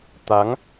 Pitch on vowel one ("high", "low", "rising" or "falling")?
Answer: rising